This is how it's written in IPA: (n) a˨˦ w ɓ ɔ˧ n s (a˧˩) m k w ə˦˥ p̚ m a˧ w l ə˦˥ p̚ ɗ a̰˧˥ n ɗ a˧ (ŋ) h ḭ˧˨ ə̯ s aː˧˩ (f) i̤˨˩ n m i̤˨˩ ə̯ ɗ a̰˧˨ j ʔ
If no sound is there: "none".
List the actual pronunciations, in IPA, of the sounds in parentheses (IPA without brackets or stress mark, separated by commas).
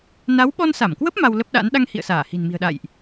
n, a˧˩, ŋ, h